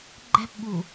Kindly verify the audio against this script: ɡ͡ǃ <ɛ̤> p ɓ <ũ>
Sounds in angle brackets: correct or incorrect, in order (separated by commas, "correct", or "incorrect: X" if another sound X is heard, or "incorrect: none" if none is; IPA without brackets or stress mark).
correct, incorrect: u